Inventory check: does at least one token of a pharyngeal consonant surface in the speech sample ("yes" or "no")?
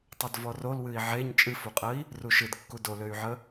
yes